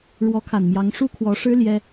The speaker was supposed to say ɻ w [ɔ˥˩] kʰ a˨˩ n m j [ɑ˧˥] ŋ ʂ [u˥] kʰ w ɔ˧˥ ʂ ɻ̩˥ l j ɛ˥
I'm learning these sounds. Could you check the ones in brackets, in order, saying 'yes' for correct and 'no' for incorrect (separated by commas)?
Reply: no, yes, yes